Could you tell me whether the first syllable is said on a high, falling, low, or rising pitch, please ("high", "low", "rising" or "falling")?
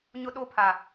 high